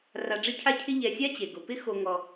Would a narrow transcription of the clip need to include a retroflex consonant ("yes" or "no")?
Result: yes